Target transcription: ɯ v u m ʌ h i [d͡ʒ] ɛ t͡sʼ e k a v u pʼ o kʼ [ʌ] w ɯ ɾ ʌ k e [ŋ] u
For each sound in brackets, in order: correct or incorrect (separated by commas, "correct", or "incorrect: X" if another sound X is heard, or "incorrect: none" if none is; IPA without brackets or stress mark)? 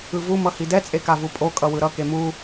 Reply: incorrect: d, correct, incorrect: m